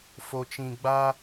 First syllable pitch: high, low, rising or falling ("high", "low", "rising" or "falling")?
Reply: low